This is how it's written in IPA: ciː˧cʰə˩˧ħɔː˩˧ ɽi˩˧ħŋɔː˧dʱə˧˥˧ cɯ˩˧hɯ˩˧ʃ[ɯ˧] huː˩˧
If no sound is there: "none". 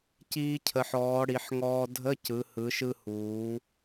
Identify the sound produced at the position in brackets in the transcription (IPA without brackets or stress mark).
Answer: ɯ˧